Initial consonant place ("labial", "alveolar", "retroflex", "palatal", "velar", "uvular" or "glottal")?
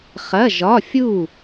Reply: uvular